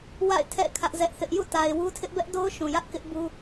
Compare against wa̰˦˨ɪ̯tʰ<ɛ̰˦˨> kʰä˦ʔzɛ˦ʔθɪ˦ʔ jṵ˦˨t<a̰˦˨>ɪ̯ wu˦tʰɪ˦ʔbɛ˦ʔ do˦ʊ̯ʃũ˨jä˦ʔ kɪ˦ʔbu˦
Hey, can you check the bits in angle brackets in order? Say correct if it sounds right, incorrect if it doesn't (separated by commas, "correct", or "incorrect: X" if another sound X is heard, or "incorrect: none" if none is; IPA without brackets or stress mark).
correct, incorrect: a˨